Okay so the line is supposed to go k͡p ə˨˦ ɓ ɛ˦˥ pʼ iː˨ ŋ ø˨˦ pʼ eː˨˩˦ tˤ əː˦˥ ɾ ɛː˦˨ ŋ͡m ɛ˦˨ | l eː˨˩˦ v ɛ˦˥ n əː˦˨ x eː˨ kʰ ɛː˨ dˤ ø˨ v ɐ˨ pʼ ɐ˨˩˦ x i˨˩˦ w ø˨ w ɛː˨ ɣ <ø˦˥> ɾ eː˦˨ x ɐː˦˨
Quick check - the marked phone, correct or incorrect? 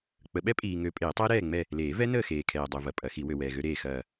correct